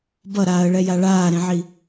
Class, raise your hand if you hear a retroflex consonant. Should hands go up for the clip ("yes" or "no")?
yes